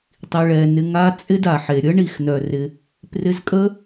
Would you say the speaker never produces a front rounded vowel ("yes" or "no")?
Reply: no